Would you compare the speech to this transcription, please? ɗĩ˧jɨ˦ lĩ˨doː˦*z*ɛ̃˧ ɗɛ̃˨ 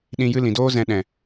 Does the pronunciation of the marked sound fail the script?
no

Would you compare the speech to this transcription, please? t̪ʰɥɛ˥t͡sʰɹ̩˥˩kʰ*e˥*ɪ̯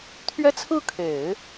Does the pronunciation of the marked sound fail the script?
yes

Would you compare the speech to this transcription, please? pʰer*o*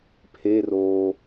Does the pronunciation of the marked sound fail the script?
yes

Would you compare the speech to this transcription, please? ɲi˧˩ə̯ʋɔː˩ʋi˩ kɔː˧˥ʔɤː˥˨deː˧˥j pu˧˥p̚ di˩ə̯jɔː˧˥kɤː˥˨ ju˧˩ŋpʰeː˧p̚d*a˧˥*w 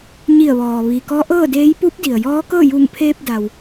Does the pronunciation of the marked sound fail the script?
yes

